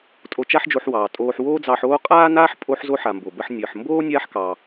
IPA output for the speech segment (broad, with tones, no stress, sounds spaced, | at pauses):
tʼ o˧ t͡ʃ a˥ ħ d͡ʒ o˧ ħ w ɑː˩ tʼ oː˧ ħ w oː˥ d͡z ɑ˧ ħ oː˥ qʼ aː˥ n aː˥ ħ pʼ o˧ ħ z o˧ ħ a˩ m b o˩ b ə˧ ħ nʲ əː˩ ħ m b oː˥ nʲ aː˥ ħ k ɑ˩